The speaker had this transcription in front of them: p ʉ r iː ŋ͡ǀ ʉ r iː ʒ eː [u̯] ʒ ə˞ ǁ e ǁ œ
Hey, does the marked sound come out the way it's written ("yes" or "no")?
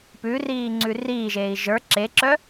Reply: no